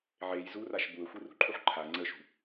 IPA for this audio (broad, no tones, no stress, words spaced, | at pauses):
ʕej zuraʃ buə̯xʷirṳǃʰuħ ǃʰa ŋ͡ǀəʃṳ